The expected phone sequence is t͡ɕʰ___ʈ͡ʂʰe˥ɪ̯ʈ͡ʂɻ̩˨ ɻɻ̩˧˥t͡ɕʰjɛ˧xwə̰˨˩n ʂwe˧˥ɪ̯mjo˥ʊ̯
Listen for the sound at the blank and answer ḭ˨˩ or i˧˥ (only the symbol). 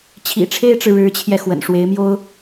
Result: ḭ˨˩